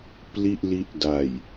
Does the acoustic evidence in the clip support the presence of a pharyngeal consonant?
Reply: no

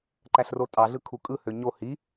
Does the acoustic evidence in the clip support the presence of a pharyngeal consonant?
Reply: no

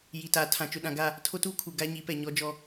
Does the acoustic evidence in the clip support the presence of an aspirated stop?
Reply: yes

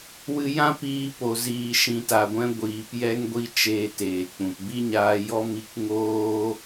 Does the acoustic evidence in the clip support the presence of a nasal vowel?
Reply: yes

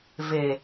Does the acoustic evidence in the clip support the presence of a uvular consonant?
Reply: no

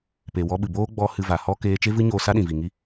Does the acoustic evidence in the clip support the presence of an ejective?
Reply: no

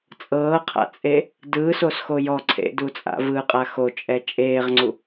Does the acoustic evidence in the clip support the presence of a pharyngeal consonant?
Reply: no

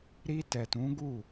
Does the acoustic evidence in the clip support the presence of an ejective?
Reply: no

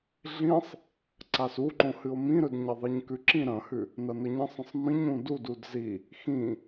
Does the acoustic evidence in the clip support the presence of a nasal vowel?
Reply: yes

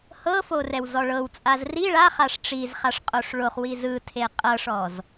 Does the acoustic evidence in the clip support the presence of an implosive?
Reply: no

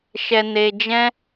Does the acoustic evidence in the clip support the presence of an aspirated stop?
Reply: no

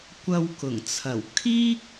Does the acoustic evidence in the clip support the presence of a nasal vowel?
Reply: no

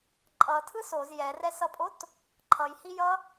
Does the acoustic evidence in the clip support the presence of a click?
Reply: yes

